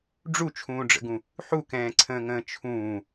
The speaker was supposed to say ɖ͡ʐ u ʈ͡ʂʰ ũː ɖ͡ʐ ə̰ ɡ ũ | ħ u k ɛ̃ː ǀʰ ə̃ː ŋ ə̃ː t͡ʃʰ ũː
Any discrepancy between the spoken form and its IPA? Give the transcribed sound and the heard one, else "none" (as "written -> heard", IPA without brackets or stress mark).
ʈ͡ʂʰ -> t͡ʃʰ